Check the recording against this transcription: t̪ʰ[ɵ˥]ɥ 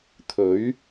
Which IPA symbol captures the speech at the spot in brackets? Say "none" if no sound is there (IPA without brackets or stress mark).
ɵ˨˥